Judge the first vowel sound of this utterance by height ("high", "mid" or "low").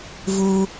high